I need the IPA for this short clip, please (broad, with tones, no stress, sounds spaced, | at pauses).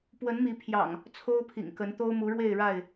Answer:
p w ə˨˦ n m i˨˦ pʰ j ɑ̰˨˩ ŋ | t͡sʰ o˦ ʊ̯ pʰ ḭ˨˩ ŋ k ə˨˦ n t̪ o˦ ʊ̯ m u˨˦ ɻ w e˥˨ ɪ̯ ɻ a˥˨ ɪ̯